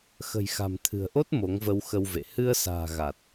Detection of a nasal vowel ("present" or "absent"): absent